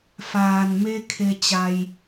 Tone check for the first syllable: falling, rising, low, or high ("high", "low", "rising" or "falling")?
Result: low